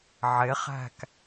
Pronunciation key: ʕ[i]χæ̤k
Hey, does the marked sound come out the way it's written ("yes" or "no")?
no